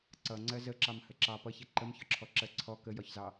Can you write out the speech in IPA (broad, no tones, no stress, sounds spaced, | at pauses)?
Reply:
ǀ ʌ ŋ͡ǀ ɜ z ə ǁ ɑ m h ə ǁ ɑ p ʌ ç ɛ ǃ ə m ç ɒ ǁʰ ɔ ǁ ɜ ǀʰ ɔ k ə j ɒ ç z ɑ